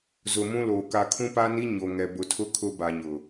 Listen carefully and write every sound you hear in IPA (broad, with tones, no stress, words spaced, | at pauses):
zʊ˨ mũ˦loː˨ ka˨kʰũ˦pa˦ni˦ ɲo˨ŋɛ˨ bʊ˨tʰʊ˦ kʰʊ˦ba˨ɲʊ˨